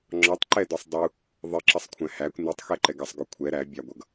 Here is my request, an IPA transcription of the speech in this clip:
ŋ͡ǁ ɒ tˤ ǃ ɛ d ɔ sˤ dˤ u | ðˤ ɪ ǁ ʌ sˤ kʷʰ æ̃ h æ kʷ n i tˤ x ɛ ǃ ɛ ɡ ʌ sˤ ɡ ʊ kʷʰ ɛ ɾ æ bʲ ɑ ɡʷ ʌ ɡ

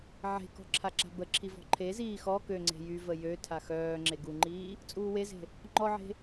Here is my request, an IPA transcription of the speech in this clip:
ʕ e̤ k ɔ̤ ǁʰ a ǁ a̤ b ə ǁʰ i v ɔ̤ ǃʰ e z iː x ɔ k ø ŋ͡ǀ e̤ j y v ə j ø tʰ a x œː ŋ͡ǁ e ɡ u ŋ͡ǃ iː | t͡sʼ uː w e z e̤ | ŋ͡ǃ ɔ ʕ e̤

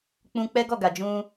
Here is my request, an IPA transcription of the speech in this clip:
k͡p ũ˧ k͡p ɛ˦ ɡ ɔ˦˨ ɡ a˨ d͡ʒ ũ˧

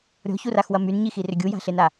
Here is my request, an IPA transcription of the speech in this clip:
ɾʲ ɔ̤ ç u r a x w ɐ m y n ɲ i x i r ʏ ɡʲ u j a̤ ɬ e n a

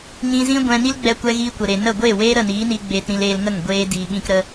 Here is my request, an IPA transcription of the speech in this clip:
ɲ ĩ˧ z ĩ˦ ɡʷ ɛ̃˧ n i˦ l ɡ͡b ɛ˧ kʷ ɛ˧ ɣ iː˧ kʷ ə˨ ɾ e˨ n ə˦˨ ɡʷ eː˦˨ w eː˦ ɾ ə˦˨ n iː˨˦ n i˧ ɡ͡b eː˧ t ɾ ĩ˧ l eː˧ l ŋ ə˦˨ ŋ ɡʷ eː˦ d iː˨ ɓ ĩ˧ k ɾ ə˧

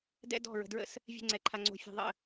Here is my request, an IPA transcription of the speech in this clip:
d ɛ̰˦ d ɔ̤˦˨ ɹ ə̤˨ d ɹ ə̰˦ s | vʲ ɛ̤˦ ŋ͡ǀ ɛ˨ ǃʰ a˨ ŋ͡ǀ o̤˨ fʲ ɔ̤˨ ðˤ ə̰˦˨

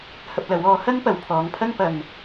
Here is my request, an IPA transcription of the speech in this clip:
h ɐ˧ p̚ l ɐ˨˧ w ɔː˧ h ɐ˥ ŋ p ɐ˨ w pʰ ɔː˨˧ ŋ pʰ ɐ˥ ŋ p ɐ˨ ŋ

